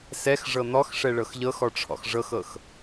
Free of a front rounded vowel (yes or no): yes